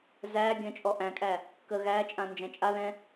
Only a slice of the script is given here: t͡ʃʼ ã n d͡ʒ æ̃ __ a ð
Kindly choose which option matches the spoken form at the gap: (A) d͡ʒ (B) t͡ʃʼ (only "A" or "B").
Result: B